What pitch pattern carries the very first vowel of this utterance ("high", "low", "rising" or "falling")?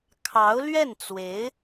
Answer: rising